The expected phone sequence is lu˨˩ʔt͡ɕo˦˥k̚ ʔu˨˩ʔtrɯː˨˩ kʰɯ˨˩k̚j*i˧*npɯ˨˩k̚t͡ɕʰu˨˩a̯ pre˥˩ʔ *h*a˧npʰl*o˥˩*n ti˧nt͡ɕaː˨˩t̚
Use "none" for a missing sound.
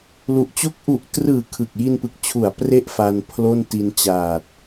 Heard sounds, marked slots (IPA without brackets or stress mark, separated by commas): i˧, f, o˥˩